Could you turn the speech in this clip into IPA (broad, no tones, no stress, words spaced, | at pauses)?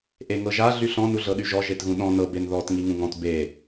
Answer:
ʔeŋɤʒa ɮyɬɔ̃ nuɮɤɗyʒɔ ʒetɣũɗɔ̃ nɤ benðɔt ŋiŋũŋɔ̃t be